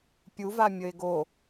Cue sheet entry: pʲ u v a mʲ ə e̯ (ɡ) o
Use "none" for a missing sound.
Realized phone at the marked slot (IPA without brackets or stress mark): ɡ